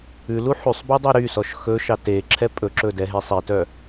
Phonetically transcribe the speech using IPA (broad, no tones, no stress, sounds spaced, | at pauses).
ʉ l u ħ ʉ sˤ b y dˤ æ ɾ y s ɔ ʃ x ɵ ʃ ɑ t e ǁʰ ɛ pʼ ɵ ǁ ɵ d ɛ ɦ e sˤ e t œ